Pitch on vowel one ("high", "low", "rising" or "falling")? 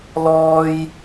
high